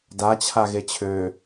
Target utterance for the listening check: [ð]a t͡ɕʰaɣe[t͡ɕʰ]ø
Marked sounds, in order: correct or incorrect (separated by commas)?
incorrect, correct